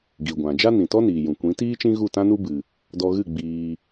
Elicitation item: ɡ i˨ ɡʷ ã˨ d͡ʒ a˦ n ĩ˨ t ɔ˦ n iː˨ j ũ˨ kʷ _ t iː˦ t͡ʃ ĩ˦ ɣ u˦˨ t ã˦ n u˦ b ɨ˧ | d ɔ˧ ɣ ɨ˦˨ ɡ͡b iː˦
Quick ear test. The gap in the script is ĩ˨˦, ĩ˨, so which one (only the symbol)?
ĩ˨˦